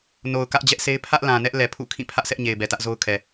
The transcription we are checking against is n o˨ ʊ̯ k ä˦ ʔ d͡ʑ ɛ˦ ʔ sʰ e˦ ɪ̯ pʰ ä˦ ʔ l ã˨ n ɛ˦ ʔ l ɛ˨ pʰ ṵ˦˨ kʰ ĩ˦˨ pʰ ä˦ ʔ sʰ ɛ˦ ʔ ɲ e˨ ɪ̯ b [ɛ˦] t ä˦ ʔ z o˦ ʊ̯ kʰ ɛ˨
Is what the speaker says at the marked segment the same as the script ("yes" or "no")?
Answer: no